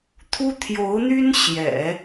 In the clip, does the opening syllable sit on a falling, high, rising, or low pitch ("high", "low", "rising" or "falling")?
high